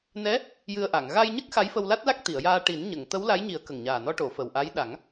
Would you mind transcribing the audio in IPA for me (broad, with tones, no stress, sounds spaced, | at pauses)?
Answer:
n ɛ˧˥ | j ɨ˧ ə̯ ʔ a˨˩˨ ŋ ɣ a˧ j ɲ ə˦˥ k̚ x a˧˥ j f ə˧ w l a˦˥ t̚ l a˦˥ k̚ t̪ i˨˩˨ ə̯ j aː˧ ʈ i˨˩˦ n ɲ ə˨˩˨ ŋ t̪ ə˧˥ w l a˧˥ j ɲ i˨˩˦ ə̯ k ə˨˩ ŋ ɲ aː˨˩ n ɔ˧ ʈ o˨˩˨ f ə˨˩ w ʔ a˧˥ j ɗ a˨˩˦ ŋ